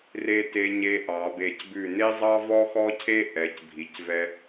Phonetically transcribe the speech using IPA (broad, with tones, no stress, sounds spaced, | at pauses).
r e˧ t e˧ ɲ e˧ ʔ ɑ˩˧ b e˧˩ c b ʉ˧˩ n e˥ zˤ ɑ˥ v ɔ˥ x ɔ˥ cʰ e˥ ʔ ɛ˩˧ c bʱ i˩˧ c v ɛ˧